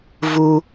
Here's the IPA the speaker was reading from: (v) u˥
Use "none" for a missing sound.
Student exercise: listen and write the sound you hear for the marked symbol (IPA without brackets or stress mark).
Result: v